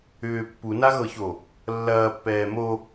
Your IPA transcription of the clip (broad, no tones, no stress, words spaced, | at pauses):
ʏː pːunaɣɤço | lːɐːpːɛː mo